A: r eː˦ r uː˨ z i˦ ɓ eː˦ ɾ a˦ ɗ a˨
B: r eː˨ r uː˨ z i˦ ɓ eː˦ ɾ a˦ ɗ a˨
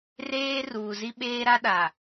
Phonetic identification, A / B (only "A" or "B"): A